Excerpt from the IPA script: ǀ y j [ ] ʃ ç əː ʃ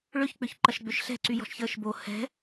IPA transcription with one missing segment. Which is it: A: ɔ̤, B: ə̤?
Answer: A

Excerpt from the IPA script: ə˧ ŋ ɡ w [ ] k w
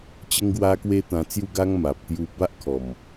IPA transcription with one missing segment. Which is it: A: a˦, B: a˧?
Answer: B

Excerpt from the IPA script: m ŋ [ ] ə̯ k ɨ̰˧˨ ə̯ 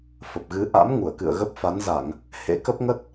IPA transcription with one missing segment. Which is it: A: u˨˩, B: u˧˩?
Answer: B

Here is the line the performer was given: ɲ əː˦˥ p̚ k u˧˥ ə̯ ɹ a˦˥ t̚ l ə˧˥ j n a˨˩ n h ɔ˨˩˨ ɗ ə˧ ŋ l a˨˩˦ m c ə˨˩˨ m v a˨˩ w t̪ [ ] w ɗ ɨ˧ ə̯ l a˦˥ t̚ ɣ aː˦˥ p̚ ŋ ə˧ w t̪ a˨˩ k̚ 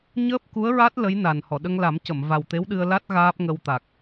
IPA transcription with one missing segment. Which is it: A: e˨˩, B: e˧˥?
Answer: B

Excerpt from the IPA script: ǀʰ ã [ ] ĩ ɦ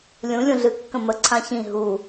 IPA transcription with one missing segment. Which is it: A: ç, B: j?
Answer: A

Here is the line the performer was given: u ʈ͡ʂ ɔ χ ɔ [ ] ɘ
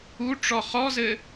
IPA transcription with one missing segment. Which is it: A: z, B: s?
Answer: A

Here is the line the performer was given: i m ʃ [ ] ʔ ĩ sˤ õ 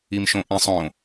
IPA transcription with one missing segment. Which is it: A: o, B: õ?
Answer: B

